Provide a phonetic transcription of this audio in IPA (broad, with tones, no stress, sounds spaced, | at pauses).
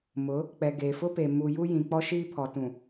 m ʊ˨˦ | k͡p ɛ˨ ɡ eː˨ f ʊ˦ p e˨ m u˨ j u˦ j ĩ˨ k͡p ɔ˦ ʃ iː˦ pʰ ɔ˨ t ũ˨